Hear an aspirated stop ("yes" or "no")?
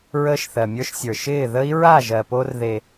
no